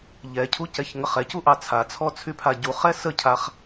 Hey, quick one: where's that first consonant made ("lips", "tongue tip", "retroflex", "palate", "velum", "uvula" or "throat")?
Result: palate